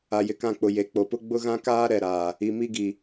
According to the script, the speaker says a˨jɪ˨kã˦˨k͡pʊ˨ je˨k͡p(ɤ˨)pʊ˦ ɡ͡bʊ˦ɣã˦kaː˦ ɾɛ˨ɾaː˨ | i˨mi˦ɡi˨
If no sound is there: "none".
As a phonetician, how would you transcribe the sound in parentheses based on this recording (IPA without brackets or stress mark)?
o˨